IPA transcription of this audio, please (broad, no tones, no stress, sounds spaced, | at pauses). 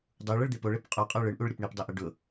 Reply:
dˤ u ɭ ə ɭ d̪ e p o ɭ e p qʼ o qʼ ə˞ ɭ ɯ ɳ ʔ u ɭ ɾʲ ə p ɳ i p dˤ ʊ ʔ ə ɖ ʊ